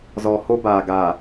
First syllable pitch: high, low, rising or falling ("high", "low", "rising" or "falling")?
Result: low